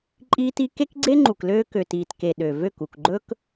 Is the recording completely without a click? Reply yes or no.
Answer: no